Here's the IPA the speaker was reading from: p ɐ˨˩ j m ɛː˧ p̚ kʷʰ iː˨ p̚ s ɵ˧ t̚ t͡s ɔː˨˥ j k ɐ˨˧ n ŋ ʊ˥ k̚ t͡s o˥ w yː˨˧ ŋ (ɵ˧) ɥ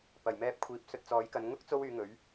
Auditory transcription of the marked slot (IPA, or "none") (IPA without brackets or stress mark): ɵ˨˥